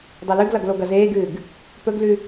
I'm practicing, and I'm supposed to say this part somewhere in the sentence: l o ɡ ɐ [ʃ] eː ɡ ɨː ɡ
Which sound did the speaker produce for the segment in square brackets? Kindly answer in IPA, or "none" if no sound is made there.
z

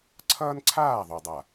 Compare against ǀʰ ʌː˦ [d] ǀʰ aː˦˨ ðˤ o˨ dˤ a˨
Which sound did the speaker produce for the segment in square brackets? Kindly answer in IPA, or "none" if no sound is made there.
n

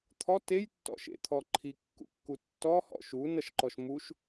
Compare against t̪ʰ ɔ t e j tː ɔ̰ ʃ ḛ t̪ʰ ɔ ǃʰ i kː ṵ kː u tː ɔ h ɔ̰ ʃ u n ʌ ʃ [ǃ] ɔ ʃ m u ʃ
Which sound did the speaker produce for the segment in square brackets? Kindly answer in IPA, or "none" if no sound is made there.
ǃ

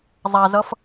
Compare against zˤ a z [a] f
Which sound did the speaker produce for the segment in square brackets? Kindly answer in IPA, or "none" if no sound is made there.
ʌ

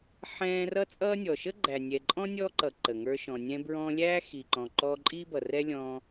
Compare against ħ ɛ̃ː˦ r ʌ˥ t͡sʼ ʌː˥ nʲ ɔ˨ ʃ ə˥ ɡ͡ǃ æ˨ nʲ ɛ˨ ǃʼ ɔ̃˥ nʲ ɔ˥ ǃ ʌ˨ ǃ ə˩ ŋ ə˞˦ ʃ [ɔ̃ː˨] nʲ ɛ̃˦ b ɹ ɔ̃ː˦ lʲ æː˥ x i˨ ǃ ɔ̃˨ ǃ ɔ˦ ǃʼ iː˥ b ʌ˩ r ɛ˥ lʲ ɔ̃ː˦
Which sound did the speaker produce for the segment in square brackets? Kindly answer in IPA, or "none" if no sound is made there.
ɔ̃˨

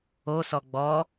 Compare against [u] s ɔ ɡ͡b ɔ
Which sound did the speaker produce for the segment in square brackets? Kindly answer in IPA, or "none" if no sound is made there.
o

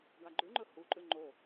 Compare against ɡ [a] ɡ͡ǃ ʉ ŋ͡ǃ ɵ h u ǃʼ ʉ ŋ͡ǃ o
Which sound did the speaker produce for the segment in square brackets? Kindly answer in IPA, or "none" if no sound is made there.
a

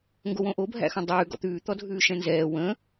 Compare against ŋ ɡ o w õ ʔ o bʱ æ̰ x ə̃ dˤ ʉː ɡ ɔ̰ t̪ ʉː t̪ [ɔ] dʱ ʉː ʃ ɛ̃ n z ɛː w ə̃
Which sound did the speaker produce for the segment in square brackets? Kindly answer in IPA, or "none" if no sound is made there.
ɔ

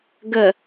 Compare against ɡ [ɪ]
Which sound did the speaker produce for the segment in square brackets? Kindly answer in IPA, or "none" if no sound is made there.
ə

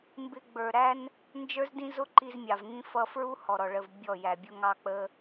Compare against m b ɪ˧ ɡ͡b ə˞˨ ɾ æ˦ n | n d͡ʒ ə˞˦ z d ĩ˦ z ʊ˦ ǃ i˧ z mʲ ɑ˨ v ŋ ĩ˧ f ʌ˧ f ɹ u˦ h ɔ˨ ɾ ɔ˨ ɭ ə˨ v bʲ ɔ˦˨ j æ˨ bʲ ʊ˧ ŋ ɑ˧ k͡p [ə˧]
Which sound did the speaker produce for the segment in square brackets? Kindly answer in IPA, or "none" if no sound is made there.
ə˧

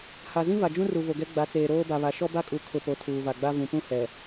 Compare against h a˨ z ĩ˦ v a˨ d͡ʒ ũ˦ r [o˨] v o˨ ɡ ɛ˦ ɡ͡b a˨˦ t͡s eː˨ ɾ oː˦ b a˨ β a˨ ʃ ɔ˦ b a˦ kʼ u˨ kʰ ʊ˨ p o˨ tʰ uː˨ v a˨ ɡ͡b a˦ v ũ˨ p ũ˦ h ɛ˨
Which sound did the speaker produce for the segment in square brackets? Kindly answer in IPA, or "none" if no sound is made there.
u˨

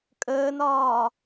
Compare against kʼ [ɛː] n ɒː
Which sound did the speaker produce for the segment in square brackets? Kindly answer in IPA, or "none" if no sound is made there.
əː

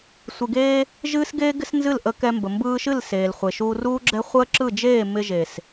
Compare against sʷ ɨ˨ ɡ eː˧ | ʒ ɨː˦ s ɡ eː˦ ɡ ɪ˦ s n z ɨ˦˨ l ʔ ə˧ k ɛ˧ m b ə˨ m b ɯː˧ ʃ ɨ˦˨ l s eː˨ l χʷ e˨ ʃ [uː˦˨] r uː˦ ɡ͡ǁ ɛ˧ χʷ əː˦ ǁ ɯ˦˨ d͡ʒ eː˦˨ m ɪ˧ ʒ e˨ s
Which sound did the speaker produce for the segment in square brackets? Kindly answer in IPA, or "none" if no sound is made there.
uː˧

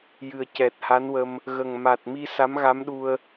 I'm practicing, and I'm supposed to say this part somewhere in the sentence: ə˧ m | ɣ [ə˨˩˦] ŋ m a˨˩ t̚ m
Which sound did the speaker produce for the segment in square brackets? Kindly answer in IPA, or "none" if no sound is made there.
ə˨˩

